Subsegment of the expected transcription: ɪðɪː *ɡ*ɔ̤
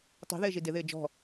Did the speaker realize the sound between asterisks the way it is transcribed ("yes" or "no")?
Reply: no